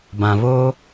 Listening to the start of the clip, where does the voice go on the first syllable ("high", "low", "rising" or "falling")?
low